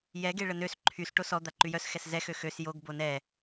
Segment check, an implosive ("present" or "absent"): absent